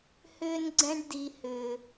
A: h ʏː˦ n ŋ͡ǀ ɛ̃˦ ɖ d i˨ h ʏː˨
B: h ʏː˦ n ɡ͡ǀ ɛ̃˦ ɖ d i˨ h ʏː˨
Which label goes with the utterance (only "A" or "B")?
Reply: B